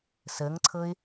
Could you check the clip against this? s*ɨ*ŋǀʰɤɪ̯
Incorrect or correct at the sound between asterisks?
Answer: incorrect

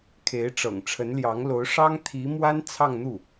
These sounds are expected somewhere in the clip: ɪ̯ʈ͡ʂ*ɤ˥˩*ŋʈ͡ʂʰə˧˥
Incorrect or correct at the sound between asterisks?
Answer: incorrect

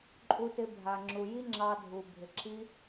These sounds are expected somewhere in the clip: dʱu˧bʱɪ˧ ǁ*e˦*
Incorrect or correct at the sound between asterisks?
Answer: incorrect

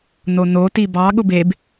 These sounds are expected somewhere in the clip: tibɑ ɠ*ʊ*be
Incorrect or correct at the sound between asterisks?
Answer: correct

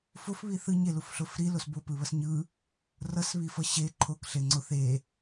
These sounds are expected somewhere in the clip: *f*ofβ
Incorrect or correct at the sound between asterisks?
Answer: correct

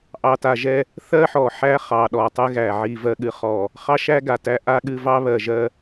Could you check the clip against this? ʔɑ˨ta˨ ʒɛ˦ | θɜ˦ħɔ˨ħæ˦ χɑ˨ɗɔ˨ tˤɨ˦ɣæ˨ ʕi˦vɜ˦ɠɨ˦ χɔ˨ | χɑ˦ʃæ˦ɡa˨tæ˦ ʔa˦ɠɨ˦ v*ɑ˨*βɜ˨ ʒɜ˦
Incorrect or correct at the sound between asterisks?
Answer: incorrect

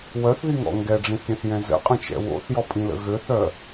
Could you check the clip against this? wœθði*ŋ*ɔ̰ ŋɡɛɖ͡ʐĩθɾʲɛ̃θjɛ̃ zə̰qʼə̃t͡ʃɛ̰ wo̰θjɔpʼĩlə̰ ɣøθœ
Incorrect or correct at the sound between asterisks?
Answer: correct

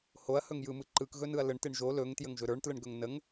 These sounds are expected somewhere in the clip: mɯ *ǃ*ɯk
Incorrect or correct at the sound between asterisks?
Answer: correct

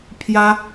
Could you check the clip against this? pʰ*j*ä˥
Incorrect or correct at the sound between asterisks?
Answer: correct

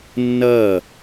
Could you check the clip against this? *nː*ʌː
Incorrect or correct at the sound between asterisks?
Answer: correct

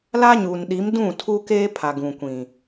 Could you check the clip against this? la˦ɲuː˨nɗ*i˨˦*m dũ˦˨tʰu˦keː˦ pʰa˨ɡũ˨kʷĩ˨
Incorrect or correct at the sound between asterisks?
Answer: correct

